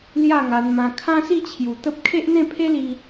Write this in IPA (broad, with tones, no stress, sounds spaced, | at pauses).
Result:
l j a˥˧ ŋ a˧ n m ã˧ kʰ ã˦ s i˥˧ t͡ɕʰ j u˨˩ t̪ ə˦ p̚ kʰ e˦ ʔ n̪ ẽ˥˧ pʰ e˦ l i˧